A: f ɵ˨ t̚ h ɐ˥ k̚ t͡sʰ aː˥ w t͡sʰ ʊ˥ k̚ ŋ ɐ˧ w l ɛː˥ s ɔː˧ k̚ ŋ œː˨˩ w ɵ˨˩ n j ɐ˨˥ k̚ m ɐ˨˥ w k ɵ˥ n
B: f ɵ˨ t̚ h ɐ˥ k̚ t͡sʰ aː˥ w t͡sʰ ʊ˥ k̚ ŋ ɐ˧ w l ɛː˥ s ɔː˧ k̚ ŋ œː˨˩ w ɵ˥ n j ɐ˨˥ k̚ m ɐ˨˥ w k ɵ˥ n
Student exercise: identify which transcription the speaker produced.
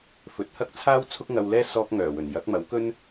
A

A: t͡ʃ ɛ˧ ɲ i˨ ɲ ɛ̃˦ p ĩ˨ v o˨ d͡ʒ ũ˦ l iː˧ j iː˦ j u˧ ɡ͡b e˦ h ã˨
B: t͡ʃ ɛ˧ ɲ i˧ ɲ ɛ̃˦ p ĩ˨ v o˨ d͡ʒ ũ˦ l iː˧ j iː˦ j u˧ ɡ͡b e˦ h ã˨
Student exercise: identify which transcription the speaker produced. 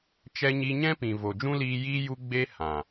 B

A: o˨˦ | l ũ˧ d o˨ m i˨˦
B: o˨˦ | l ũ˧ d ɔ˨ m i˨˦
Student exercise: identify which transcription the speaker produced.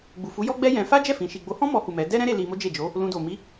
A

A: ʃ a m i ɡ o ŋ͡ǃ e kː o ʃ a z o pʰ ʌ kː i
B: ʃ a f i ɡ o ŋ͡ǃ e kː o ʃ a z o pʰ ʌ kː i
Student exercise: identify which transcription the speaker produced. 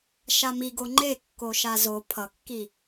A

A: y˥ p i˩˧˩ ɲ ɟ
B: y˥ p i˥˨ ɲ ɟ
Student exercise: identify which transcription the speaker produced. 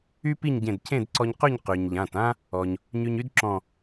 B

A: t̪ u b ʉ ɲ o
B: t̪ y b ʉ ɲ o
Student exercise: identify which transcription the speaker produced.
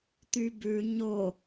B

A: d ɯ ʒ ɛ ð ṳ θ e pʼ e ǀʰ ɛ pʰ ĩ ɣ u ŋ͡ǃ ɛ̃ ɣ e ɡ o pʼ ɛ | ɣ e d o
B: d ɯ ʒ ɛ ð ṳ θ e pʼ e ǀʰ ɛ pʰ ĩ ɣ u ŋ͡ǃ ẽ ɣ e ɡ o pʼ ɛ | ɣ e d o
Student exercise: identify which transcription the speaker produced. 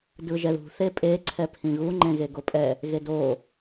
B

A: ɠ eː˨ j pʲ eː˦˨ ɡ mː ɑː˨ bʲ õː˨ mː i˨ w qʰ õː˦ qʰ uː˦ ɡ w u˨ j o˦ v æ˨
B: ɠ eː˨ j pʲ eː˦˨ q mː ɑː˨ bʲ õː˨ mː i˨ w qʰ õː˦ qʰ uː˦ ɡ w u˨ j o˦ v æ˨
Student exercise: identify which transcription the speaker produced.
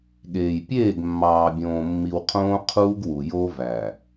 A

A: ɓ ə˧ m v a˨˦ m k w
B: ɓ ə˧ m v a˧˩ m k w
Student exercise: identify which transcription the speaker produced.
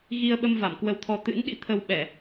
B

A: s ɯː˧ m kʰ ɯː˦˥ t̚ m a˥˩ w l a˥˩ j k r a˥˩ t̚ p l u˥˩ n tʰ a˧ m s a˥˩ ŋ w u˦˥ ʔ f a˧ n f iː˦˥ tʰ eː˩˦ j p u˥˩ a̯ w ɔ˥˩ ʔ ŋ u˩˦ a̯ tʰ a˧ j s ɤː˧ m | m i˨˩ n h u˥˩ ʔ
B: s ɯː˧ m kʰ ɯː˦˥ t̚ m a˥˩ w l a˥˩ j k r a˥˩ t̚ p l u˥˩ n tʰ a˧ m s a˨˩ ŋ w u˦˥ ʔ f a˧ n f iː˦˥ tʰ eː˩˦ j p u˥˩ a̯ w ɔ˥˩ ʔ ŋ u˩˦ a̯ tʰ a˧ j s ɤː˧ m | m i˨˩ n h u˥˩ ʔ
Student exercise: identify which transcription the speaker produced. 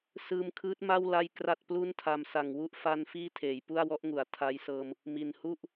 B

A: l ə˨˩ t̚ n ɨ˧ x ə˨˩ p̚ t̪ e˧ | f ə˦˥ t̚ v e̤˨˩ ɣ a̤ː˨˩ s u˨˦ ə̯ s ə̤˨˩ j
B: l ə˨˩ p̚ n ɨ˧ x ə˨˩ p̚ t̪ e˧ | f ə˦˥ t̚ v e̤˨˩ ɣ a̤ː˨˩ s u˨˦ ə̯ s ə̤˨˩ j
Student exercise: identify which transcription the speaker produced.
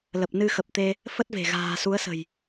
B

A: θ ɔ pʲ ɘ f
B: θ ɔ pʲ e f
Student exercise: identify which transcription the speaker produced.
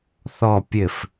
A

